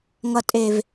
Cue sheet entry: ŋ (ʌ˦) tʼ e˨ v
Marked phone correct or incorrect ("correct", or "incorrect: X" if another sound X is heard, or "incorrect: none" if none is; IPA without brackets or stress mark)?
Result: incorrect: ʌ˨